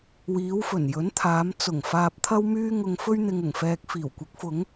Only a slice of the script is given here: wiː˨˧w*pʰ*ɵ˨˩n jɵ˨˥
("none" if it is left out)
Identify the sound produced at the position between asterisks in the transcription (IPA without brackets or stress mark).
f